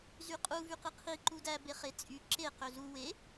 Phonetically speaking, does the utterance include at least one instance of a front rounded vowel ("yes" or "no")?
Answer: yes